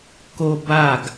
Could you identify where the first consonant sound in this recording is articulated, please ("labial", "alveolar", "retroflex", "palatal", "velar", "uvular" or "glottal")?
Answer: velar